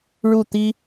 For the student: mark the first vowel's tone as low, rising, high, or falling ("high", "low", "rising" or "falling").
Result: falling